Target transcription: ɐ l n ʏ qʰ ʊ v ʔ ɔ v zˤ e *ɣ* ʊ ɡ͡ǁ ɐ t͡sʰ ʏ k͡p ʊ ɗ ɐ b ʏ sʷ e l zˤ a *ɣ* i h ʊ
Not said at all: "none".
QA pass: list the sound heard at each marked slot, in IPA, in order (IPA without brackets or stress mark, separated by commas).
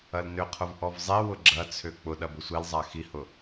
w, x